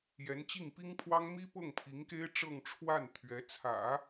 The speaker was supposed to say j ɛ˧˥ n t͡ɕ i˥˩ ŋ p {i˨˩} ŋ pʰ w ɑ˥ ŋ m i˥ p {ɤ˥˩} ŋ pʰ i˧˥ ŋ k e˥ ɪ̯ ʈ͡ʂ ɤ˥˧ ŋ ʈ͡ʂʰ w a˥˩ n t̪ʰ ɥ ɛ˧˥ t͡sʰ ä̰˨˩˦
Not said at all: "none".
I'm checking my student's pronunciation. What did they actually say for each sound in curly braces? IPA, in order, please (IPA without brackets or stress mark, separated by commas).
i˥, ɤ˥˩